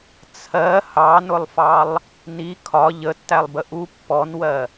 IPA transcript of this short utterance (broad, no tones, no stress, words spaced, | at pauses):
t͡sʰɜ hɑnʊlˠfɑlˠ | ni kʰɒ ʎətːælˠbə ʔu pːɔnwɜ